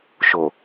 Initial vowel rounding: rounded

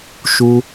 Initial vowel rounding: rounded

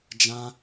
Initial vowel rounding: unrounded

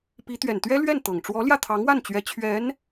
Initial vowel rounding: unrounded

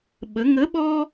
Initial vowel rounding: unrounded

